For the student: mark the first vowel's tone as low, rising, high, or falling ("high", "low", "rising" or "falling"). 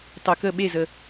low